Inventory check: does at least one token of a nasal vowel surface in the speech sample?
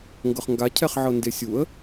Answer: no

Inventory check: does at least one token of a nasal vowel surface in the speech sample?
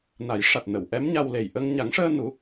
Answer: no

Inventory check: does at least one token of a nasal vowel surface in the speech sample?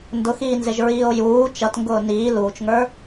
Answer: no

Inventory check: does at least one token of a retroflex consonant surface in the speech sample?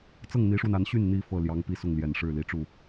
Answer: yes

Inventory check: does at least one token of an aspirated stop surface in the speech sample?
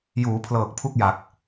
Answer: yes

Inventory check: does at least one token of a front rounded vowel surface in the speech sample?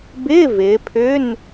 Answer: yes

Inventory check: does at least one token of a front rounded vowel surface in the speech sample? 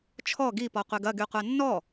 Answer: yes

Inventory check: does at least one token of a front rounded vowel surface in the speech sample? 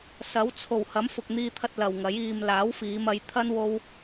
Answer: no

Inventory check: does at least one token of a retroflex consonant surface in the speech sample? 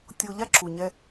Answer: no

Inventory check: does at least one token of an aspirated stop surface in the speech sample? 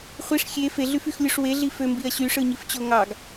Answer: no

